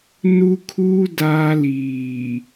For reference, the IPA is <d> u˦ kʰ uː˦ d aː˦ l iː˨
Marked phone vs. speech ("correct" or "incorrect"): incorrect